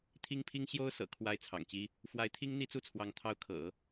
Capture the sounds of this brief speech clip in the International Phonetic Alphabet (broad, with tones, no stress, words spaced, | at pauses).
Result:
t̪ʰi˥ŋpʰi˥ŋ ɕjo˥ʊ̯ sɤ̰˨˩kʰwa˧˥ɪ̯ t͡sʰɑ̰˨˩ŋt͡ɕi˥ | fwa˧˥ɪ̯t̪ʰi˥ŋ n̪i˥t͡su˥˩t͡sʰwɑ˧˥ŋ t̪ʰɑ˧˥ʊ̯kʰɤ̰˨˩˦